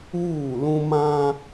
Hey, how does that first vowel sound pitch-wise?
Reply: falling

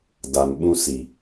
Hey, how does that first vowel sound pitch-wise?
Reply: low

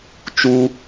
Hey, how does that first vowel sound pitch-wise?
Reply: high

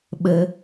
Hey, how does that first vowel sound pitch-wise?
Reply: low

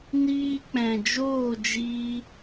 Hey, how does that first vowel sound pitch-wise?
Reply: high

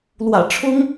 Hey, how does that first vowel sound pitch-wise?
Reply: low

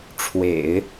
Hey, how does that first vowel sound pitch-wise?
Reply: low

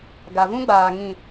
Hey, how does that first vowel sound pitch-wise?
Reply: low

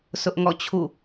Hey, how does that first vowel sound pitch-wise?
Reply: high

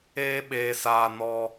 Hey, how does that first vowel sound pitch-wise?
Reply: high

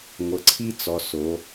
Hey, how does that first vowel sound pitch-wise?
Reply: low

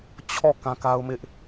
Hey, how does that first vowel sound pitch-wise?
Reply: falling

